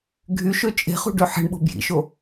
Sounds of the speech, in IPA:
ɡʱy ʃøt͡ʃʼe̤χṳ ɖøħe̤ɳɓo̤ bjḭʃo

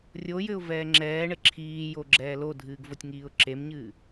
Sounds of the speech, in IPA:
rʲojɘʊ̯ vɛːŋ͡ǁɛːɳɘ ǁʰiːjo ɡ͡ǁɛːlodʱɨːɡ votʲŋiːʊ̯ǁemɲɨː

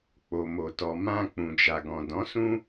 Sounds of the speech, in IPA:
k͡po˨mo˨tɔ˨mã˧ k͡pũ˨d͡ʒa˨ɡɔ̃˨ dɔ̃˨˦sũ˦

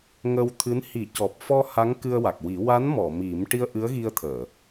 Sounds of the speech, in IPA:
ŋə˧wt̪ʰɨ˧˥n hi˨˩˦cɔ˨˩p̚fɔ˧ ha˧˥ŋkɨ˧ə̯wa˨˩k̚wi˨˩˦ wa˧˥nmɔ˨˩˨ mi˨˩˦m ʈi˧ə̯ʔɨ˧˥ə̯ɣi˧ə̯t̪ʰəː˨˩˨

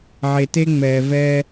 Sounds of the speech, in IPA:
ʕe˩te˧ŋ͡mɛː˩ vɛː˧

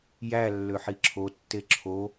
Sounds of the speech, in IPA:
jælːø ħiǁʰotːe ǁʰo

